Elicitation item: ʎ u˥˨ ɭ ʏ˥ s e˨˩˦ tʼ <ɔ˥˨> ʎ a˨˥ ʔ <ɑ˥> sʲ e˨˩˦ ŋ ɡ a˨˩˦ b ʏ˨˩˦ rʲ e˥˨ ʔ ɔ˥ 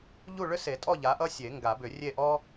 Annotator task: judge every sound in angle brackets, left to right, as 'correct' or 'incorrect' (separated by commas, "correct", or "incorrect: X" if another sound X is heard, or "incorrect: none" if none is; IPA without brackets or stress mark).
correct, incorrect: ʌ˥